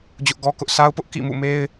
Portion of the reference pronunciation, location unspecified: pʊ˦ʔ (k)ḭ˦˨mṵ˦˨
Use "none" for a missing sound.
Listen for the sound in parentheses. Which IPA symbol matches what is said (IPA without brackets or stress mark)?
k